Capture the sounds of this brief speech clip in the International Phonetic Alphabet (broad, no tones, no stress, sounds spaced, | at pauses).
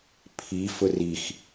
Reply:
pʰ i f ʊ r i x